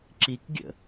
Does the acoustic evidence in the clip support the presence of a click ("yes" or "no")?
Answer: yes